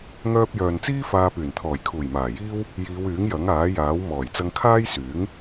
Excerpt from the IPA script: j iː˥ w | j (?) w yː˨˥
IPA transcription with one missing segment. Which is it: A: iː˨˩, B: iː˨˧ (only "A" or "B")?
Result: B